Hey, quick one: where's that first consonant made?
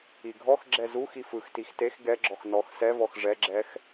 velum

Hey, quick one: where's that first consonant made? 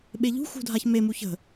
lips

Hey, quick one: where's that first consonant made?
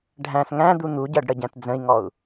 retroflex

